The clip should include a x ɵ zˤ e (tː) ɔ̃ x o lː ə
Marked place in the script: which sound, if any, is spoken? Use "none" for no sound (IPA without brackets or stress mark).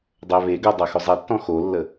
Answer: tː